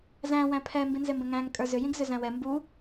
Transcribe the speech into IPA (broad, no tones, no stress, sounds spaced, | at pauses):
z æ̃ w æ̃ pʰ ɛ m b ĩ n z e m b ə̃ ŋ æ̃ ŋ kʼ ə˞ z ʏ j ĩ ɡ z ʏ z æ̃ w ɛ m b u